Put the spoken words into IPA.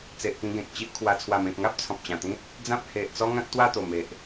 t͡s e˨ ʔ k ĩ˧ ɡ ẽ˨ k̚ t͡ɕ i˦ ʔ kʰ w a˧ t͡sʰ w a˨˩ m ẽ˨ k̚ ŋ a˦ p̚ t͡sʰ ɔ̃˨ p̚ t͡ɕ ã˨˩ t̪ ĩ˦ t̚ | d͡z ã˦ p̚ h e˨ ʔ t͡s ɔ˦ ŋ ã˦ k̚ t̪ w a˥˧ t̪ o˨˩ m e˨ ʔ

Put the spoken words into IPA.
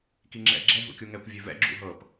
k i ŋ͡ǁ ɛ̰ ɡ͡ǁ ɛ ɦ ṵ kʲ u ŋ ɛ kʷ vʲ ø v ɛ̰ ɡ͡ǁ ṵ ɦ ɤ p

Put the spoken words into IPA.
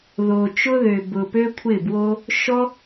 ð o˨ t͡ʃ ʊ˦ ð ø˨ b ʊ˨ p ø˦ kʷʰ ɪ˦˨ b w o˦ | ʃ ɔ˦

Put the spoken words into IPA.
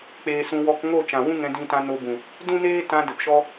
k͡p eː˧ s ũ˧ w ɔ˧ k ŋ o˦˨ t͡ʃ ã˨ w ũ˦ ŋ ɛ̃˧ d ĩ˧ t ã˧ n o˧ b ũ˨ | d ũ˦ n eː˦ t ã˧ d ə˨ p ʃ ɔ˦

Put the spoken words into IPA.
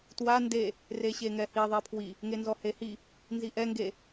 t w a n d e | r e ɕ e ŋ ɛ h i ðˤ e pʰ w i | ŋ e n z ɔ h e h i | n z i ʔ ɛ ŋ ɡ e

